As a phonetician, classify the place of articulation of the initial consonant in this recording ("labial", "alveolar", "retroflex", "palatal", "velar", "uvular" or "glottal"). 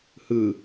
glottal